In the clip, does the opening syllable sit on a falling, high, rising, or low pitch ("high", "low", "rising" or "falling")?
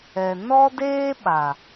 low